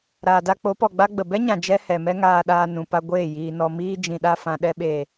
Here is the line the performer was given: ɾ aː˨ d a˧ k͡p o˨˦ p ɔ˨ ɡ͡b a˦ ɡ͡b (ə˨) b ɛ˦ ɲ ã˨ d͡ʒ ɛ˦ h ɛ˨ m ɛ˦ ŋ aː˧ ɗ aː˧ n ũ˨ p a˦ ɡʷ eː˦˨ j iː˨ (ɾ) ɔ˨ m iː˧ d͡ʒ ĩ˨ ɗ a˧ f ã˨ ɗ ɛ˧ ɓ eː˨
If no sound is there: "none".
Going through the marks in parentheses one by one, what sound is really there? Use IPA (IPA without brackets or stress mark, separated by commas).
ə˨, n